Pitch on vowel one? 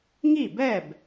falling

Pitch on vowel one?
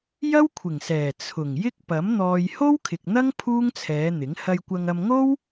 high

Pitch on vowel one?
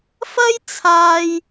high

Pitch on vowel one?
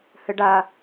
high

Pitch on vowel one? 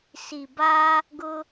low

